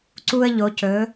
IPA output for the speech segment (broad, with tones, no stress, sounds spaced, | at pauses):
ǀ u˦ ə̯ ʎ o˨˦ c ɵ˨˦